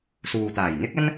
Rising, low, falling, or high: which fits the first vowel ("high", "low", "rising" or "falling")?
low